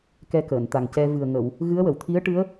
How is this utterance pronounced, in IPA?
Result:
k ɛ˧ k əː˨˩˨ n t̪ a˨˩ ŋ c ɛ˧ v ɨ˨˩ ə̯ ŋ ə˨˩˨ w | ɣ ɨ˧˥ ə̯ w ə˨˩˨ w t̪ʰ i˧˥ ə̯ ʈ ɨ˧˥ ə̯

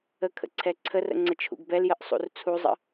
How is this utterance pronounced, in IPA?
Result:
ə kʰ ə̰ ǀʰ ɛ ǀʰ ə r ə̰ ŋ͡ǀ ə t͡ʃʰ ṵ ɡ b ɛ l j ə ʔ sˤ ṵ r t͡sʰ u zˤ ə̰

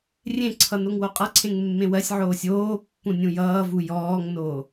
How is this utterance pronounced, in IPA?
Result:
rʲ ẽ ǀʰ ʌ n o ŋ w o qʼ ʌ ǀʰ ẽ ŋ mː ẽ w ɜ sʲ ʕ oː sʲ oː pː ũ nʲ ũ j ʌː v u j ɔː ŋ n oː

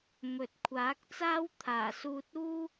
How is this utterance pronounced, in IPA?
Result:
m ɵ˨˥ t̚ kʷʰ aː˨˥ k̚ t͡s aː˥ w t̪ʰ aː˨˩ s uː˧ t̚ uː˥

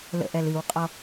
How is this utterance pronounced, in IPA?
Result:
l ə̰ ʔ ɛ l ɨ w qʼ ɔ

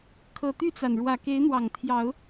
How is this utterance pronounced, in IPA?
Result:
kʰ ɤ˨˩ t̪ y˥˨ t͡s a˩ n ɻ w ä˨˩ k e˨˦ ɪ̯ n̪ w ɑ˨˩ ŋ t̪ʰ j ɑ˨˦ ʊ̯

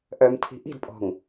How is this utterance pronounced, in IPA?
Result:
ʔ œ m tʰ i̤ ʔ i̤ d pʼ ɔ̤ ŋ

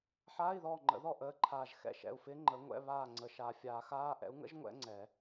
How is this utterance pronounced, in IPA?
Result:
ħ aː˧˥˧ i̯ ð ɔː˦˨ ŋ͡ǃ ə̰˨˩˦ ð ɔ˦˨ ʔ əː˧˥˧ ǃʰ aː˦˨ ʒ x ɛ̰˦˨ ʃ ɛ̰˦˨ u̯ f ɪː˦˥ ŋ͡ǃ əː˨˥ ŋʷ ɛ̰˧˥˧ β aː˦˨ ŋ͡ǀ ə˨ ʃ aː˨ fʲ aː˨˩˦ x aː˧˥˧ ʔ ɛ̰˨˥ u̯ ŋ ə̰˦˥ ʒ ŋʷ ɛ̰˦˥ ŋ͡ǀ ɛ˨˩˦

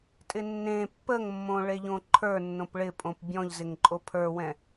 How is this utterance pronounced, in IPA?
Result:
tʼ ɪ nː ẽ pː ə ŋ mː õ ɭ e ʎ õ ǃʰ ə˞ nː õ p ɭ ɪ pʼ õ p bʲ ɔ̃ ʎ z ɪ ŋ ǃʼ o pʰ ə˞ w ɛ̃

